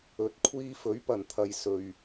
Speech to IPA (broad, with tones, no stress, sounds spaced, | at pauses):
ɵ˨˥ t̚ kʷʰ iː˧ f ɵ˨˥ ɥ p ɐ˨˩ n t̪ʰ ɐ˨ j s ɵ˨ ɥ